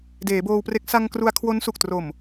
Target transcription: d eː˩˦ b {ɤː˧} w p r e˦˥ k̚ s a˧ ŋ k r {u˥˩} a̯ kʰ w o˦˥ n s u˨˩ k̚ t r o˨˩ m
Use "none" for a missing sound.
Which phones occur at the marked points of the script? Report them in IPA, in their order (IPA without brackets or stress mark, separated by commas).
oː˧, u˧